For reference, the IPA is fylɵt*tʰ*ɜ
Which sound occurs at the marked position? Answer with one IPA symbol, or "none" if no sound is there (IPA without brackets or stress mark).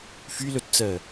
t͡s